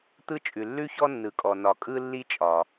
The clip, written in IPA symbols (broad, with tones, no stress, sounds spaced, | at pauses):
t̪ ɯ˥ t͡ʃʼ ʉ˩ lː ʉ˥ ç ɔ˥ nː ɯ˩ kʼ ɔ˩ n ɒ˩ kʼ ɯ˥ lː i˥ t͡ʃʼ ɒ˩